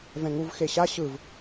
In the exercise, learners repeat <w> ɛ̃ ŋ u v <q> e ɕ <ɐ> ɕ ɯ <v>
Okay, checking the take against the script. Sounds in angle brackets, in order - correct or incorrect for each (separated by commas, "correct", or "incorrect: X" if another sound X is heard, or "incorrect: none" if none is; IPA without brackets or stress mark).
incorrect: v, incorrect: x, incorrect: a, correct